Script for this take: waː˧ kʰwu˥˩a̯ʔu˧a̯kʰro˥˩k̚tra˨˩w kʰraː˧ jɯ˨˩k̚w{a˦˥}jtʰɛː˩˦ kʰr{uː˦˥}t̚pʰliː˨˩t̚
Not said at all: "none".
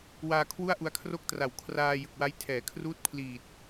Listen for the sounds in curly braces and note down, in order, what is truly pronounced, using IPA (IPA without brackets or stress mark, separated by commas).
a˦˥, uː˦˥